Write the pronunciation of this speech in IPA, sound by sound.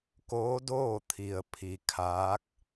k oː˧˥ d oː˥˨ t̪ʰ i˩ ə̯ pʰ i˩ kʰ aː˧˥ k̚

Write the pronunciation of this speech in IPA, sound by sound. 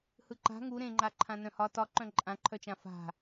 h ɯ ǃ a̤ ŋ u ɾ ẽ ŋ͡ǃ a ǃʰ ã n œ̃ h ɒ t ɒ ǃ œ̃ ǃʼ ã ǃʰ œ t͡ʃ ã f a̤

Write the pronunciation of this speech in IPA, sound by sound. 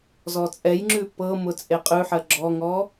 z ɔ t͡sʼ ɛ j ŋ͡ǁ ʉ p ɤ m ʊ t͡sʼ e qʼ ʉ ħ ɜ ɡ͡ǁ ɔ ŋ ɔ

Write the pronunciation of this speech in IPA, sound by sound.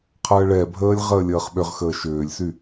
qʰ əː ɭ ɛ bʱ əː lʲ ʁ əː lʲ əː χ ɓ ʏ ʁ x əː ʃ ʏː lʲ s y

